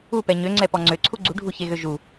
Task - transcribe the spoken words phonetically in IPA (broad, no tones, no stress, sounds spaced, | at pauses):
u p ɛ ɲ ø ŋ͡ǀ ɛ p ɔ ŋ͡ǀ ø ǀʰ u ɡ͡ǀ u ɖʱ u ç e ɣ ø ʒ u